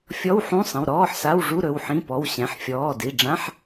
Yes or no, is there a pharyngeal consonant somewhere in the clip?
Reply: yes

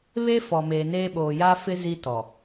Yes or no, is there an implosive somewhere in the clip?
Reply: yes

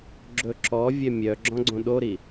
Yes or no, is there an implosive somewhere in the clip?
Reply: yes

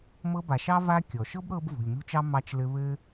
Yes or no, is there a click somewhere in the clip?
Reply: no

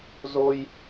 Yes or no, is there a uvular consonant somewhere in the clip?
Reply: no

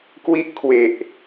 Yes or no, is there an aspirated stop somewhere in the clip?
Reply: yes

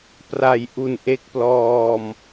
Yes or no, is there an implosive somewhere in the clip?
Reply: no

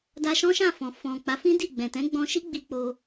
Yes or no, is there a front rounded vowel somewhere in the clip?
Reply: no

